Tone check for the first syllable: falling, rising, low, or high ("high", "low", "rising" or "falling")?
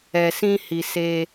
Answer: low